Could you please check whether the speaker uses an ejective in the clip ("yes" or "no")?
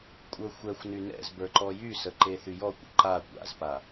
yes